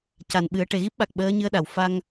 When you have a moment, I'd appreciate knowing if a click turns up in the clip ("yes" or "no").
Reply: no